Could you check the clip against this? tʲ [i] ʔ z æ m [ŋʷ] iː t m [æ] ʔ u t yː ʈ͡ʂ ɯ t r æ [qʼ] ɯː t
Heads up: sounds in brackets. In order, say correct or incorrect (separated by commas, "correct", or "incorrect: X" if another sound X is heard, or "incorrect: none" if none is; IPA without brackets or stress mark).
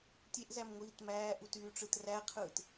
incorrect: e, correct, incorrect: æː, incorrect: qʰ